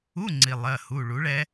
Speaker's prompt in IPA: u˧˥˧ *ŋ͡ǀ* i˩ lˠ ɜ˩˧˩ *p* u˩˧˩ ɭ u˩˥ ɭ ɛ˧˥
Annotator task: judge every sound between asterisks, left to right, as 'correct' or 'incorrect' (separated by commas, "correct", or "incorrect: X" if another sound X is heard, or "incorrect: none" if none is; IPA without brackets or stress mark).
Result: correct, incorrect: h